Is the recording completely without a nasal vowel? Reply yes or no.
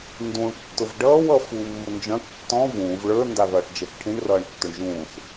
no